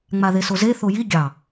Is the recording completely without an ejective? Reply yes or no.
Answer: yes